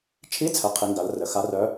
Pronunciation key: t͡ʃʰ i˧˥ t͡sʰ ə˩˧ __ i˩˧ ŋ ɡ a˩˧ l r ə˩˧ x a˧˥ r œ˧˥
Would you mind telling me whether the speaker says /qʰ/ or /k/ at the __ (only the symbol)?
qʰ